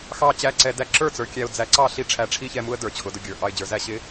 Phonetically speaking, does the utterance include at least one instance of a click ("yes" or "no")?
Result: yes